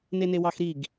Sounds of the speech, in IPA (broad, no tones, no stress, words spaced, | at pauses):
nenewɑxɾiɡ